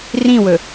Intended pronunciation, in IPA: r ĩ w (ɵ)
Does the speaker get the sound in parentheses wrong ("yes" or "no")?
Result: no